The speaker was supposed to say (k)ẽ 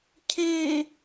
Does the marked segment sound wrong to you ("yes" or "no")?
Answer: yes